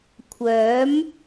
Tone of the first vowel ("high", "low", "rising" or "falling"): rising